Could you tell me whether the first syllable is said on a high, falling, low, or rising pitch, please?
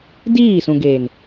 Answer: falling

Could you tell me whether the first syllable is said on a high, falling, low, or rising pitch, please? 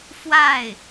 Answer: falling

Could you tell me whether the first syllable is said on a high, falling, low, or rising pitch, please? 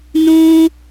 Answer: high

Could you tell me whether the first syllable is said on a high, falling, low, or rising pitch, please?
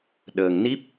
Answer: low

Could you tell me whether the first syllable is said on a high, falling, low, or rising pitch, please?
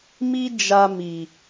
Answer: high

